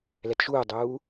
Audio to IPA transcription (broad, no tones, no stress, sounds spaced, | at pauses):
l ɛ t ʃ uː dˤ uː